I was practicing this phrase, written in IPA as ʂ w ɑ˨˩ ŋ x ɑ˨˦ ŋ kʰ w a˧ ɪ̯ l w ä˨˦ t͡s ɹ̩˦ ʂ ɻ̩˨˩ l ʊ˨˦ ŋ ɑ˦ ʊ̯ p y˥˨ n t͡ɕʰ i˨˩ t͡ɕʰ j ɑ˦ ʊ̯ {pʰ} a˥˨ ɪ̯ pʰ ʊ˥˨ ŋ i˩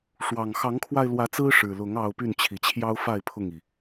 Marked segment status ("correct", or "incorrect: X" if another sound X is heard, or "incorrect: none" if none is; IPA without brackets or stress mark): incorrect: f